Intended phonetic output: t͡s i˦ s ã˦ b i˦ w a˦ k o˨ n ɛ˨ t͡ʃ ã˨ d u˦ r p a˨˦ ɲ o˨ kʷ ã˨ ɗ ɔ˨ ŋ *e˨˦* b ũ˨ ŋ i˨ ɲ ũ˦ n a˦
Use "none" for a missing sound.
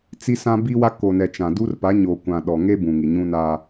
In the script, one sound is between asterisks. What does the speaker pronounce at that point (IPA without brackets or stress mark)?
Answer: e˦